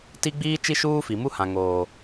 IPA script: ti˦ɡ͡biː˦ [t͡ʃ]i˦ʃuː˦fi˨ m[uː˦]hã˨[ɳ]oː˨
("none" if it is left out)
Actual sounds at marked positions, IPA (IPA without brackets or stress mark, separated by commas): t͡ʃ, u˦, ŋ